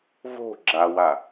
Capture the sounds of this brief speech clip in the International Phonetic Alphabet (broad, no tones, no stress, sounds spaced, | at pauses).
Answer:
v o̤ ɡ͡ǁ a w a